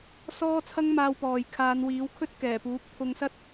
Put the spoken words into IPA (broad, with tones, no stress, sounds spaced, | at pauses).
s ɔː˥ t͡sʰ ɐ˥ ŋ m aː˧ w p ɔː˨ j kʰ aː˨˧ n w iː˨˥ w kʰ ɵ˥ t̚ k ɛː˨˩ p uː˨˥ p̚ t̪ʰ ʊ˧ ŋ s ɐ˥ t̚